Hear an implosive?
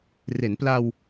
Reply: no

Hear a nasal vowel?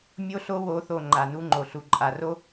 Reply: no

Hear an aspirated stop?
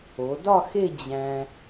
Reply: no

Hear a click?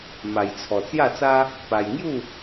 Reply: no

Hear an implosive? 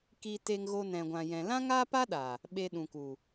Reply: yes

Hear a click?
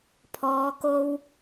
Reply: no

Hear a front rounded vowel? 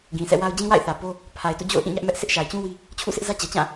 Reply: no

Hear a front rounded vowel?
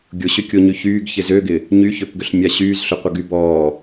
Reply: yes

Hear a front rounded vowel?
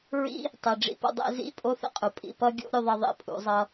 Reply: no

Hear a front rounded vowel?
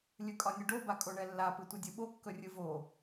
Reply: no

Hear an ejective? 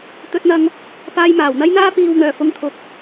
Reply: no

